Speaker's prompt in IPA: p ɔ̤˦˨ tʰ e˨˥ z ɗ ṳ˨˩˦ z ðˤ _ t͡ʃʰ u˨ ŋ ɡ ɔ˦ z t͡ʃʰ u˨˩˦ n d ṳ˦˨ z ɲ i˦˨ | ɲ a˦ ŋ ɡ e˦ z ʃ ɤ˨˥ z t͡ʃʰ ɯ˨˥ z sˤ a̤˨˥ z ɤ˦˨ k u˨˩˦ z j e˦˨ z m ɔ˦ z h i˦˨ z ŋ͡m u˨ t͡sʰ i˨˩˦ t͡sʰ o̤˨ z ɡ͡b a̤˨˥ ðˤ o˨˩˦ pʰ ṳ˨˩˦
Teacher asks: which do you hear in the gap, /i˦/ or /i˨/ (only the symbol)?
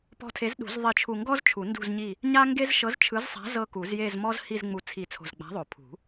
i˨